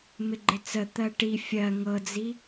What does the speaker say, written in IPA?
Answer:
mɪɡ͡ǃɪt͡sə t̪ɜʈi fʲɜ ŋɤd͡zi

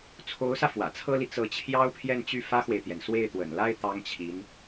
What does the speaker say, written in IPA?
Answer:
t͡sʰo˧˥ʊ̯sä˧ fwä̰˨˩t͡sʰɤ˥li˨ t͡sɤ˧˥t͡ɕʰjɑ˥ʊ̯pʰjɛ˥˧nt͡ɕy˥˩ fä˥xwe˨ɪ̯t̪jɛ˩n swe˥˩ɪ̯t̪wə̰˨˩nla˥ɪ̯ t̪ɑ˥ŋt͡ɕʰi˧˥n

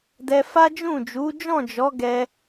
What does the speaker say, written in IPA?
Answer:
dɛ˧fa˦d͡ʒũ˦˨ d͡ʒu˨˦d͡ʒɔ̃˦˨d͡ʒɔ˨˦ ɡɛ˧

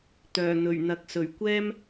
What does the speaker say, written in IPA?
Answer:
t̪œː˨˩n̪ɵ˨˩ɥn̪ɐ˨k̚ sɵ˨˩ɥkʷɛː˥m

